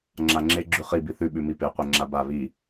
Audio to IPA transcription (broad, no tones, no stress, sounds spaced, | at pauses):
ŋ͡ǁ a ŋ͡ǁ e ɡ͡ǁ ʉ χ i b i θ ʉ ɓ ʉ m i p e qʷ e ŋ͡ǁ a b a β i